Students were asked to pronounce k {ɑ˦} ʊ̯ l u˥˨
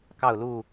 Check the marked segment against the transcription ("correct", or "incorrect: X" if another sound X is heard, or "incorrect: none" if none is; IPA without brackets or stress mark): incorrect: ɑ˥˨